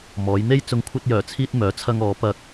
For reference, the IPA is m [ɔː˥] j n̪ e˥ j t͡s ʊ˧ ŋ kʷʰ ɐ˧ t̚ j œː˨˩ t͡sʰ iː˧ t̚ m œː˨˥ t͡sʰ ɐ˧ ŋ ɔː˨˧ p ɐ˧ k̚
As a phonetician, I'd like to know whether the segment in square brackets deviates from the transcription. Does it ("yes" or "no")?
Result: yes